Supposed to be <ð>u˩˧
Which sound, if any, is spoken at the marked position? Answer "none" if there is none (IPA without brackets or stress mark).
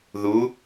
ð